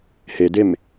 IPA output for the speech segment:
h e d e m

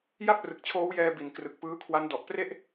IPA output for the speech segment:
j a˥˩ p̚ r ɯ˨˩ k̚ t͡ɕʰ oː˦˥ w j ɛː˧ b i˨˩ n k r ɯ˨˩ k̚ p ɯː˦˥ kʰ w a˦˥ n d ɔ˨˩ ʔ p r e˥˩ ʔ

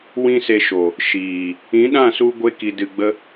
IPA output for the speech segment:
w ĩ˦ s e˧ ʃ o˨ | ʃ iː˨ | ĩ˨˦ ɗ ã˦˨ s u˧ ɡʷ e˦ k i˧ d ɨ˧ ɡ͡b ə˦

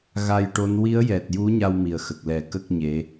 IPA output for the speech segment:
ɣ a˧ j ʈ o˧˥ n w i˧˥ ə̯ j ɛ˨˩ t̚ j u˧˥ ɲ a˧ w m i˨˩ ə̯ x ə˨˩ k̚ l ɛ˨˩˦ k ə˦˥ k̚ ɲ e˧˥

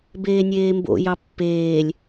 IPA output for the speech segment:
b eː nʲ eː m b o̰ j ɑ pː eː lʲ

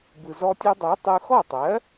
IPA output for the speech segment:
b ɯ˩ z ɔ˧ tʲ ɜ˧ dˤ ɜ˩˥ tˤ ɯ˧ x ɔ˥˩ tˤ ɜ˩˥

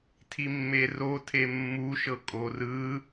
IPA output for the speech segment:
tʰ i mː e r o tʰ e mː u ʃ ɤ kʼ o r ɯ

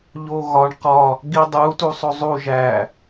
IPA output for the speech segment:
ʎ o ɣ ɒ ɳ q ɒ | ɡ i dˤ u t u sˤ o zˤ u ʒ æ

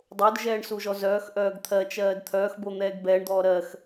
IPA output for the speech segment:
dˤ o d ʒ ɛː ɳ s u ʒ ɔ z œː x ʔ œː ɡ t̪ʰ ɜ t͡ʃ ɜː d t̪ʰ œː x b o n̪ ɛː ɡ b ɛː ɳ d̪ ɔː ɾ ɜ x

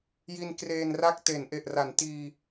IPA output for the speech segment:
j i˧ n k r eː˧ n r a˥˩ k̚ t e˩˦ n ʔ e˨˩ ʔ r a˩˦ n t iː˧

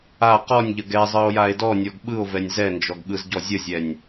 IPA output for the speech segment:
a q ɔ nʲ ʎ ə ɡ ɛ zˤ ɯ o̯ j a e̯ d ɔ nʲ ɔ ɡ ɓ ɯ o̯ v ɛ nʲ z ɛ n d͡ʒ ɔ ɡ ɠ ɯ z ɟ ɔ zʲ ə zʲ ɛ nʲ

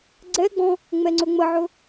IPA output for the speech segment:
ɡ͡ǀ ɛ ɡ͡b ɔ̃ | ŋ͡m ɛ ŋ͡ǀ ɵ ŋ͡m ə ʕ ɵ

